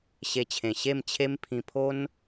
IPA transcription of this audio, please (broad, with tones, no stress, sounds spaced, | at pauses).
ɕ e˧ t͡ɕʰ ẽ˨˩ ɕ e˥˧ m t͡ɕʰ e˦ m pʰ ĩ˧ pʰ o˦ n